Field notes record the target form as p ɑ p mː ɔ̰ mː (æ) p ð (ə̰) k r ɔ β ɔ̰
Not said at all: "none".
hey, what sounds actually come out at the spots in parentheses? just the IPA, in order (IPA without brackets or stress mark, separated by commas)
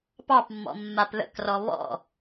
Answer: a, ə̰